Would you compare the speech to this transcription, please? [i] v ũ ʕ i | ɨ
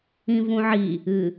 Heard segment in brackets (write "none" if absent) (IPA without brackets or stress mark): ĩ